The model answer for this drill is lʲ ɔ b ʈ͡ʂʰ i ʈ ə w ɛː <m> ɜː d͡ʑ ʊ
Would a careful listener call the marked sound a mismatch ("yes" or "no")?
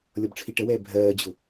yes